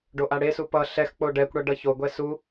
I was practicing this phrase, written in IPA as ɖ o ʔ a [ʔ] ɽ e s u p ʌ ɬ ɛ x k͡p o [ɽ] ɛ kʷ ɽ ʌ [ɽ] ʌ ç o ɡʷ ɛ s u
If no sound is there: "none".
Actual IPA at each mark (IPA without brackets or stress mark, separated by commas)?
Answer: none, ɖ, ɖ